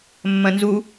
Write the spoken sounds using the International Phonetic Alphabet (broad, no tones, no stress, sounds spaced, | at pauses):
mː ɐ̃ n z u